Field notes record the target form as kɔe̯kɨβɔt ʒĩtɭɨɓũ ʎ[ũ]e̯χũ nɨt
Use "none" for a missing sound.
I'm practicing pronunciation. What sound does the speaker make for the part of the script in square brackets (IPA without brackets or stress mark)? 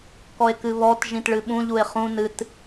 u